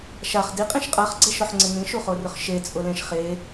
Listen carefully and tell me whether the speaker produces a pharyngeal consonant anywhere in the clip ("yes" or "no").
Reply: yes